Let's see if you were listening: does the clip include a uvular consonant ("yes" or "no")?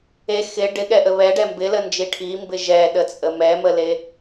no